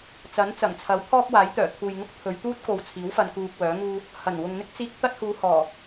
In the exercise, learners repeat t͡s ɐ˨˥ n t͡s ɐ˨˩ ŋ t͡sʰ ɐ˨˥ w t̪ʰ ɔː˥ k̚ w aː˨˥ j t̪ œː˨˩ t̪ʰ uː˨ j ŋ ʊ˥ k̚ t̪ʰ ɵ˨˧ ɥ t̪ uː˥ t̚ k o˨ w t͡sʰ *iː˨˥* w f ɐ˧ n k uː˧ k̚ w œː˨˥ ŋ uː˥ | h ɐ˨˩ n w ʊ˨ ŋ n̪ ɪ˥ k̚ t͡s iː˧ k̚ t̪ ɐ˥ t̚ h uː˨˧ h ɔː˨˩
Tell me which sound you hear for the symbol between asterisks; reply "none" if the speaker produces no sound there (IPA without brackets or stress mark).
iː˨˥